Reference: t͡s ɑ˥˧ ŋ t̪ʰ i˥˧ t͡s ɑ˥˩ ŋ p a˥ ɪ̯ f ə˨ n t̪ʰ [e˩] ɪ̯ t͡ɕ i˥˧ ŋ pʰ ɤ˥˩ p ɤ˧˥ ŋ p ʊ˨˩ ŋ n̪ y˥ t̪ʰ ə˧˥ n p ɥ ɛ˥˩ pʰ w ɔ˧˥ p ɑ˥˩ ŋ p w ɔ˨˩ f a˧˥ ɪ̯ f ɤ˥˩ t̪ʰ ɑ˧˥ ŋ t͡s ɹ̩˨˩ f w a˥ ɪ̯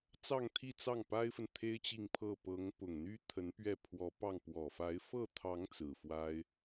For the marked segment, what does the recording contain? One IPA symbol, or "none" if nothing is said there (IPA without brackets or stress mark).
e˥